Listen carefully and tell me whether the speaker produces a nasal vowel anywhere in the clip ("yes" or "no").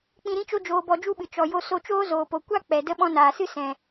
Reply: yes